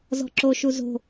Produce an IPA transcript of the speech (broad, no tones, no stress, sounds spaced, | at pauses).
z ɔ̤ ǁ o ʃ u z o̤